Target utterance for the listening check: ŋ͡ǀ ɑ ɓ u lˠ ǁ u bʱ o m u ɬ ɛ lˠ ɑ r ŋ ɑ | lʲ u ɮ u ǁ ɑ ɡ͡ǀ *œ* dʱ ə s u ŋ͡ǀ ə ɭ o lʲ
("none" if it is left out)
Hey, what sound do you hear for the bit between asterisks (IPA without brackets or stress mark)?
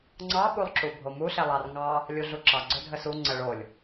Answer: ɵ